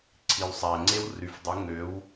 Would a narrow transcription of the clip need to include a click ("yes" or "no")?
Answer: yes